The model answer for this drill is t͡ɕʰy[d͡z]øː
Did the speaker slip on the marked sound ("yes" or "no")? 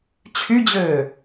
yes